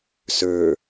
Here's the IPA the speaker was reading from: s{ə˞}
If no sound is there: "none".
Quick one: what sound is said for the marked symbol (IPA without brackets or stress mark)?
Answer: ə˞